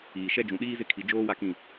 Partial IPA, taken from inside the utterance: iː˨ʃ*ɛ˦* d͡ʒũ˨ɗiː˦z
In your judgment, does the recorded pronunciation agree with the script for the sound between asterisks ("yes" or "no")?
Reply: yes